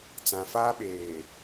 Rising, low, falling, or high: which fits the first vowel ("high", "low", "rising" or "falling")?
low